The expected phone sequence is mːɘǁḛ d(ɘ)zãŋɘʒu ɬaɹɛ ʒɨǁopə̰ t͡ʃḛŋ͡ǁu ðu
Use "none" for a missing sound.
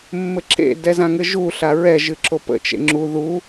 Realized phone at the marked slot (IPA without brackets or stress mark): ɛ